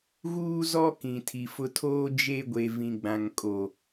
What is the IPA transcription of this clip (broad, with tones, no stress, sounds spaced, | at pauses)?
ɣ uː˦ z ɔ˦ k ĩ˨ tʰ i˨ f ʊ˦ tʰ oː˦ d͡ʒ e˦ ɡʷ e˨ v ĩ˨ ɡ͡b ã˨ ŋ kʼ o˨